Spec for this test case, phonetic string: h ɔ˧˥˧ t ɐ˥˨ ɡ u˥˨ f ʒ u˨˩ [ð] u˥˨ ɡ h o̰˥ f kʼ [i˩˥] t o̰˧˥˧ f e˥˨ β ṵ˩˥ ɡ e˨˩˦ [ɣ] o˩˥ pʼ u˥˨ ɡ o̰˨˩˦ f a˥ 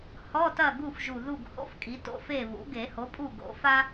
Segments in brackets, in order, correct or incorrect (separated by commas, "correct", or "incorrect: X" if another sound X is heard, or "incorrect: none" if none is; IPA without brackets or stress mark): correct, correct, incorrect: h